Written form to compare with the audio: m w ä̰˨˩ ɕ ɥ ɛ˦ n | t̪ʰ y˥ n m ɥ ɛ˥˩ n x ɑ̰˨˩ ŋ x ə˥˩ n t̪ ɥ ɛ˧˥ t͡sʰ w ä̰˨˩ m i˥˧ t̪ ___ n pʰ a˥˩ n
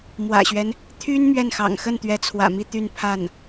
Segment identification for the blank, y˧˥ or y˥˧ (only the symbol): y˥˧